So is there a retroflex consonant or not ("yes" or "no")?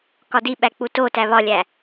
no